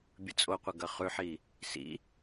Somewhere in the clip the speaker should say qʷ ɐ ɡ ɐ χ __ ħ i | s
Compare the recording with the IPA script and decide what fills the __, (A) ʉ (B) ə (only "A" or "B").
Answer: A